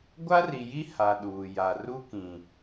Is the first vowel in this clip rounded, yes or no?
no